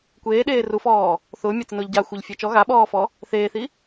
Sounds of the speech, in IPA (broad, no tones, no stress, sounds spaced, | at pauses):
kʷ eː ɗ eː r u f ɔː | θ ʊː mʲ a t͡s ɪ n ʊː ʎ ɟ a xʷ e ʎ fʲ ɛ t͡ʃ ɔ ɣ a ɓ ɔː f ɔ | θ eː θ i